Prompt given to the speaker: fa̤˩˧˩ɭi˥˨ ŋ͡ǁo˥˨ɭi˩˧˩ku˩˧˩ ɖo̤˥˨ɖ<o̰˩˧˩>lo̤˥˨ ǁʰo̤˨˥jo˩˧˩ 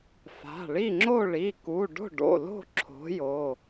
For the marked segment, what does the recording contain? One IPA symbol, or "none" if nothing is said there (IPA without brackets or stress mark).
o̰˩˧˩